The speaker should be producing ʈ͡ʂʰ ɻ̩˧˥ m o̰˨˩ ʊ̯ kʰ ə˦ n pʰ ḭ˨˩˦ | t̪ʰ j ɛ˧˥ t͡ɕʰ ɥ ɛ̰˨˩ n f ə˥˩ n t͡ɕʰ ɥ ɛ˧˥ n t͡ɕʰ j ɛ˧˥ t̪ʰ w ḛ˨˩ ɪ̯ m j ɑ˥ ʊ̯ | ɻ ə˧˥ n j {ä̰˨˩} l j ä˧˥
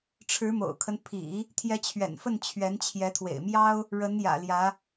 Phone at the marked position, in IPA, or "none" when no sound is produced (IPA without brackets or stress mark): ä̰˨˩